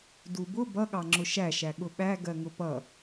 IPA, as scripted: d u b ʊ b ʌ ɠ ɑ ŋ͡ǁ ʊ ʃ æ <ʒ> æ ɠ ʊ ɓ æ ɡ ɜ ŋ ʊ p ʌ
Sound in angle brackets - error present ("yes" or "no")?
yes